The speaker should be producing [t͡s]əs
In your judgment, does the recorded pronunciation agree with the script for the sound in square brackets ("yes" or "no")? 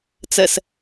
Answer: yes